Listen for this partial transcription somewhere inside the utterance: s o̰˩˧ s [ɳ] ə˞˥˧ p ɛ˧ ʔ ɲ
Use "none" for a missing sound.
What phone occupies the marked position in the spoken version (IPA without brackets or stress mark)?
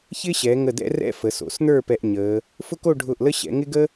n̪